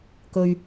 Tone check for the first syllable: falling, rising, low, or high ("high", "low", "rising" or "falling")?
low